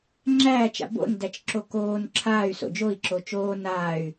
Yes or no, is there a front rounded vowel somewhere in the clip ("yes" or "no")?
yes